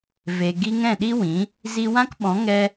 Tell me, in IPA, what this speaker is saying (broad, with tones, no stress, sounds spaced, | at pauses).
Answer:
v e˨ ɡ i˧ ŋ ɛ̃˦˨ ɗ i˦ w ĩ˨˦ | z i˧ w ã˦ k ɓ ɔ̃˨˦ ŋ ɛ˦